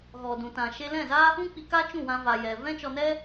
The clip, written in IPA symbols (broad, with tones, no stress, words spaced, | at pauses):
ɣɔ˨dũ˨tã˨ʃe˧ lɛ̃˦˨za˦ | ũ˦k͡pi˧ ka˦t͡ʃũ˦˨wã˧ va˨jɛ˨ vɛ̃˦t͡ʃɔ˧nɛ˦